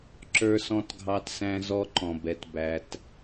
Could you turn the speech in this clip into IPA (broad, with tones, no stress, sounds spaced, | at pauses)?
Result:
ǁ ə˞˦ s ɔ̃˦ t ɡʱ ɑ˦ t s æ̃˦ z ɔ˦ ǃ ɔ̃˨ b ɛ˨ t b æ˨ t